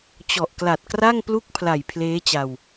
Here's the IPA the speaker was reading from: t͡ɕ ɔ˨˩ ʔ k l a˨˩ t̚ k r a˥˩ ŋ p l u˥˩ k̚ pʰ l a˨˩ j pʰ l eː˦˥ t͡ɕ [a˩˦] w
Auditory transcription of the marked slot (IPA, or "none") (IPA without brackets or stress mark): a˧